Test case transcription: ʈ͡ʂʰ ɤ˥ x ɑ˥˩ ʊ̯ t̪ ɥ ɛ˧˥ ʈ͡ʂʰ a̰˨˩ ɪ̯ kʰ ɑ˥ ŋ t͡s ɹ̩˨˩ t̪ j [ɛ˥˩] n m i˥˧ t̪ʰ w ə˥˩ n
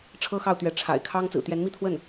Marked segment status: incorrect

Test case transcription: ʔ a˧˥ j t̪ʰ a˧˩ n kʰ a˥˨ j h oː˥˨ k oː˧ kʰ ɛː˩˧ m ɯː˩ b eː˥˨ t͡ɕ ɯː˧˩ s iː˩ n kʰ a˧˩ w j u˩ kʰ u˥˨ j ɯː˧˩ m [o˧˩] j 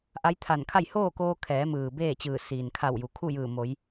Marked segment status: incorrect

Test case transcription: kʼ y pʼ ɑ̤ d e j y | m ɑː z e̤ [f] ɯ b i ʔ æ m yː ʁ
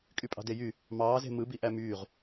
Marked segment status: incorrect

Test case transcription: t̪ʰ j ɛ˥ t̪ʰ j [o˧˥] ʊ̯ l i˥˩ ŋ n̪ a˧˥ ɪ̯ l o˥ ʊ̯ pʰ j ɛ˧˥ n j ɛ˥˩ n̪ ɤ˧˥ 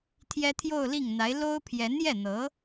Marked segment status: incorrect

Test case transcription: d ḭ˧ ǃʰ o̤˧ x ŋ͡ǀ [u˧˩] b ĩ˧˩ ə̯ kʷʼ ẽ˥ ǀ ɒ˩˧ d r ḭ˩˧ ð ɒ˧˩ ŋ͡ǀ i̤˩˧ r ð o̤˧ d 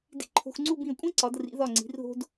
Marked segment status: incorrect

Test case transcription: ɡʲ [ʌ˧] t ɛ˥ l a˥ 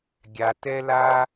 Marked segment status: incorrect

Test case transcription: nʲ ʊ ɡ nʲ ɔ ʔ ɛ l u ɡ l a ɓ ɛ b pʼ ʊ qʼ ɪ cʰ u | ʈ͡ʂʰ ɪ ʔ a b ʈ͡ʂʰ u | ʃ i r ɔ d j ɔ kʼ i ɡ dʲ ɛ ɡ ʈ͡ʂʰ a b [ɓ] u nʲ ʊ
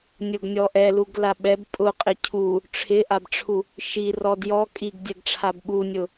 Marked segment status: correct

